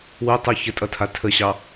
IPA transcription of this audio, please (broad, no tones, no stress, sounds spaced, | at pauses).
w u tˤ u ç ə tʼ ʌ tʰ a tʰ ə ɕ ɑ